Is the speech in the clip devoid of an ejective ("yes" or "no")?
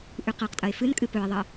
no